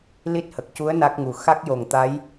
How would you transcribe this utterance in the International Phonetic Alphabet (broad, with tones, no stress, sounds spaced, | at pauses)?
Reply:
l i˦˥ t̚ h ə˨˩ k̚ c u˧˥ ə̯ n a˦˥ k̚ ŋ u˨˩ x a˦˥ k̚ j o˨˩ ŋ t̪ a˧˥ j